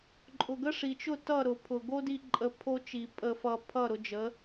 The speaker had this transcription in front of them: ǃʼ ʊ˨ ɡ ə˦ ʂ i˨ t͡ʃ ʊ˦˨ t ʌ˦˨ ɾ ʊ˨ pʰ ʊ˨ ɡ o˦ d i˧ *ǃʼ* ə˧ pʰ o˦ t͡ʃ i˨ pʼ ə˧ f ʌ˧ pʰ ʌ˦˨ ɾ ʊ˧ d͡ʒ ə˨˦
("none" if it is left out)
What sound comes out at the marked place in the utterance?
ǃʼ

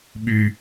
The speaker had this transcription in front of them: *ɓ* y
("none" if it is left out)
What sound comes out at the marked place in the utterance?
ɓ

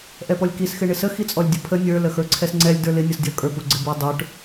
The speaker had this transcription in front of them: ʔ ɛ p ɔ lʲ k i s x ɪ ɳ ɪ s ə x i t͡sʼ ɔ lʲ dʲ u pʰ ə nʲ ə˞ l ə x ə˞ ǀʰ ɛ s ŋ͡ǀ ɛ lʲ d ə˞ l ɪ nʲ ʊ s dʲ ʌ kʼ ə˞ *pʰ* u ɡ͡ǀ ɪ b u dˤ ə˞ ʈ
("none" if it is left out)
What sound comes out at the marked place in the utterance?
p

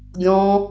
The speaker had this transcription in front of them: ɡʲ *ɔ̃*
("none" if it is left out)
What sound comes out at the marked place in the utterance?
ɔ̃ː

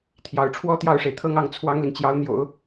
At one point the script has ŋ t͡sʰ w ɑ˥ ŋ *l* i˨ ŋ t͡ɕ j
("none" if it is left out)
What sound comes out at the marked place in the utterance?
l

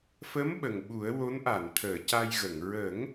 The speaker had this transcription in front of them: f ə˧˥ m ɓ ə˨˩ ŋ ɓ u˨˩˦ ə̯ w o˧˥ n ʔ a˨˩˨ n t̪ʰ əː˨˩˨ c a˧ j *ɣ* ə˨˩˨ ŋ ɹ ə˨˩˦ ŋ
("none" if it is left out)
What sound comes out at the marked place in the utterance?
ɣ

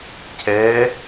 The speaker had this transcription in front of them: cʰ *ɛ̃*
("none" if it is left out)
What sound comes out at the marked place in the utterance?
ɛ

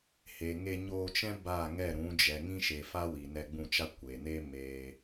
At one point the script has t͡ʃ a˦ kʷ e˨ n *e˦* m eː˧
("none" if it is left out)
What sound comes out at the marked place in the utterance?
e˦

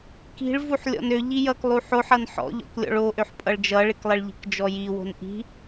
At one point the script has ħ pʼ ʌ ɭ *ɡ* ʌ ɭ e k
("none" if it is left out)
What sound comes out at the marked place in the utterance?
d͡ʒ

